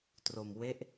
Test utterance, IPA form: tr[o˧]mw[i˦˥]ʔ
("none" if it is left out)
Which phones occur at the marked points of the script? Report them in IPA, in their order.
o˧, e˦˥

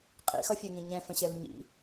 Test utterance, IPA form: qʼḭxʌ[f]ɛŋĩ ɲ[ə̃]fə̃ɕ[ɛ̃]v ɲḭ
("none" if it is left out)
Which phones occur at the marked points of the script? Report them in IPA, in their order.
fʲ, ɛ̃, ɛ

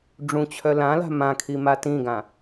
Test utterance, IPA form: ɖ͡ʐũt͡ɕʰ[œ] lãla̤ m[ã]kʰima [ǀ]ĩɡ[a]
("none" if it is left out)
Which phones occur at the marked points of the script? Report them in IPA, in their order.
œ, ã, t, ã

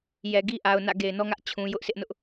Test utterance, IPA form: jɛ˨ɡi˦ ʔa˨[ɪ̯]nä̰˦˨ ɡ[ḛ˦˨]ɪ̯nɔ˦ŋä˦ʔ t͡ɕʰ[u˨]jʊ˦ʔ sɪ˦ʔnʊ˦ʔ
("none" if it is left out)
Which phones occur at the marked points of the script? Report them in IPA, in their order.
ʊ̯, e˨, ũ˨

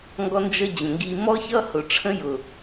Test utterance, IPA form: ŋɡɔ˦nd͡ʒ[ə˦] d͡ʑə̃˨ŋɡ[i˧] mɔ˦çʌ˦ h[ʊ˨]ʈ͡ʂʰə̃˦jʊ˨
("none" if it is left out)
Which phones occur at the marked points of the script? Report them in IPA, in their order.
ə˦, i˧, ʊ˨

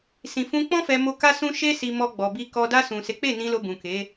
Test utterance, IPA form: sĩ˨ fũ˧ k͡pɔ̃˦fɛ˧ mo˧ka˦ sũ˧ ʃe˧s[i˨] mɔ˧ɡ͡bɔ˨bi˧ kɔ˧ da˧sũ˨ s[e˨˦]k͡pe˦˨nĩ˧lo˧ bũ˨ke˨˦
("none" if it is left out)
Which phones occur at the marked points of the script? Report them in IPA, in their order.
i˨, e˨˦

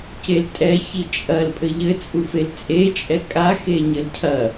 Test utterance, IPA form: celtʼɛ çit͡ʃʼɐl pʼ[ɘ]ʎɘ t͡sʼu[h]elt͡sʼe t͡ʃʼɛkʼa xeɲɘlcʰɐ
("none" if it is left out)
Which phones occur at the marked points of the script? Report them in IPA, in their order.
ɘ, f

